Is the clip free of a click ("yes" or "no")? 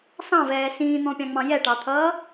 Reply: yes